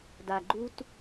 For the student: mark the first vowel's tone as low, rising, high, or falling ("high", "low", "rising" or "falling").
low